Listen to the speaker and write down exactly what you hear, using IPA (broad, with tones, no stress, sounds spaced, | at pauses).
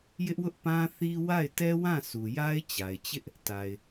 j ɪ˦ ʔ w ʊ˦ ʔ p ã˦ θ i˦ w a˦˨ ɪ̯ t ɛ˦ w ã˦˨ sʰ u˨ j a˦ ɪ̯ t͡ɕ a˨ ɪ̯ t͡ɕ ɪ˦ ʔ | t a˨ ɪ̯